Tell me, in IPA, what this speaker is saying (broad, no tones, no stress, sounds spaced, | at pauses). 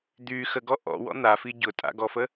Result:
d̪ y x ə ɡ ɔ ʔ ɔ̰ w ɔ̰ n̪ a f i ɟ ʊ tʼ a̰ ɡ ɔ f ə